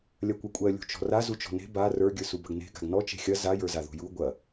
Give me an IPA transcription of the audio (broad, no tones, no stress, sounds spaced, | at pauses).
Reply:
lʲ ɐ kʷ ɜ kʷʼ ɜ lʲ ṳ t͡ʃ ɔ̤ r a z u t͡ʃ ɔ̤ n e̤ b a r ə˞ ɡʲ ə˞ s u b ɐ ɡ n e̤ ɡ a̤ ɡ n ɔ t͡ʃ e̤ xʲ ɐ z a j ə˞ z a ð ṳ j u ɡʷ ɐ